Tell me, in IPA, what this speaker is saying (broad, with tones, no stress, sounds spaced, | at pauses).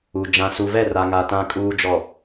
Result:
u˨ d͡ʒ ã˨ s u˨ v ɛ˦˨ r a˨ ŋ a˨ t ã˨ kʼ uː˨ d͡ʒ ɔ˨